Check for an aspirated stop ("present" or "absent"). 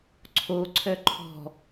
present